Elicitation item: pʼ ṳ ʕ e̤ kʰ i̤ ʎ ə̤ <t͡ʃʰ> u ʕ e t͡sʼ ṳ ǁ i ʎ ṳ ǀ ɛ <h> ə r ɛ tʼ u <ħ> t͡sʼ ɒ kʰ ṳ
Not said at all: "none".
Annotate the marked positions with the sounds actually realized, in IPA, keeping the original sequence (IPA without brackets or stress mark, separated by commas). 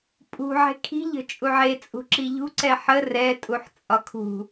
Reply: t͡ʃʼ, ħ, ħ